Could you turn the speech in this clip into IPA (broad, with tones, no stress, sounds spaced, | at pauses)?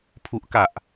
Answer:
pʰ u˨˩ ʔ k a˨˩ ʔ